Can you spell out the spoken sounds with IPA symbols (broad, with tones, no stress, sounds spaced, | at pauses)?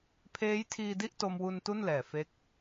pʰ eː˦˥ j tʰ iː˧ d i˥˩ ʔ t o˧ m w u˧ n t u˥˩ n l ɛː˨˩ f e˦˥ k̚